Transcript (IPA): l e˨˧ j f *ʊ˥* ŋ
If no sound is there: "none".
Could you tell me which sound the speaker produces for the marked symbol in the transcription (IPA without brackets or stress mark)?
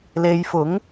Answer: ʊ˨˥